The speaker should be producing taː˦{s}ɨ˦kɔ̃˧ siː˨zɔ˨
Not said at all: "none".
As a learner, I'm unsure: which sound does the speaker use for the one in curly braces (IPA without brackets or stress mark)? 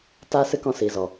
s